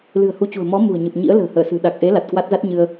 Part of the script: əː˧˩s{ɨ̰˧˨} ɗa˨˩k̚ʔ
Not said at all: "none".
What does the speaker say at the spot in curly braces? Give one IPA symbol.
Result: ɨ̤˨˩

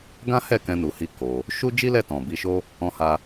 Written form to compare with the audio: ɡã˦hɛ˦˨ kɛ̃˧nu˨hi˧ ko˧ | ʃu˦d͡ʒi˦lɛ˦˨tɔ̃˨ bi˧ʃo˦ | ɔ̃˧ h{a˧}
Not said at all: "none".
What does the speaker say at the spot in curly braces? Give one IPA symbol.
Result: a˧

